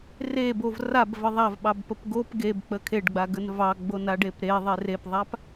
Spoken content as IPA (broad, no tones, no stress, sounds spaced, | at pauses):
r e b o v r a b v ə ðˤ a v ɓ ɑ b p ə p ɡ o p ɡ e b k͡p ə kʰ e ɖ ɡ͡b a ɡ ə n v ɑ ɡ͡b o n a ɖ e p ɾ e ðˤ e r e p ðˤ a p